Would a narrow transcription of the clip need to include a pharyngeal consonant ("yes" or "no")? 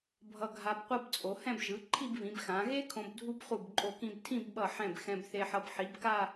yes